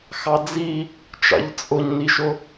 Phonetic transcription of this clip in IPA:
x ɑ d͡z i | t͡ʃ ɑ̰ ʎ t͡sʼ ʊ ɲ n i ʃ ʊ

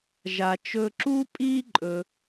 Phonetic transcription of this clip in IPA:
ʒ a˧ t͡ʃ ɵ˧ ǁ u˦ pʼ i˦ ǃʼ ɵ˧

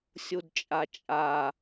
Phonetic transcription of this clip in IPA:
sʲ u d t͡ʃʼ a t͡ʃʼ a

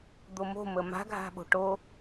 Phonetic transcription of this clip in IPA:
d̪ o m o̤ m ə m a̤ ɡʱ a̤ ɓ o̤ ʈ o

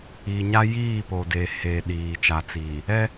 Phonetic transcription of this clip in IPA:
i˨ ɲ a˦ j iː˦˨ p o˨ d e˨ h eː˨ ɗ iː˨ t͡ʃ a˨ t͡s iː˨ | ɛ˦

